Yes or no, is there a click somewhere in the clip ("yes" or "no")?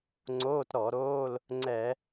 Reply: yes